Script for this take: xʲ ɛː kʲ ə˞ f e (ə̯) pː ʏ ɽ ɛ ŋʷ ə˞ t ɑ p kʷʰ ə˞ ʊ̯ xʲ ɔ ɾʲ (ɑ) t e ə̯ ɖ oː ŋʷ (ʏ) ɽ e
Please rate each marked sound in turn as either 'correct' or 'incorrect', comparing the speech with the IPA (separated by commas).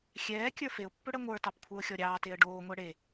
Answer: incorrect, incorrect, incorrect